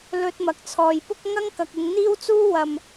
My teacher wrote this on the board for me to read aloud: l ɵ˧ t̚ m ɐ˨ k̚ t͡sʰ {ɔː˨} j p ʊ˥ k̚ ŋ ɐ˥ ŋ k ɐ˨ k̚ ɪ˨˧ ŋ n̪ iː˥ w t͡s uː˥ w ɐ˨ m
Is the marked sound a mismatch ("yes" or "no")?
no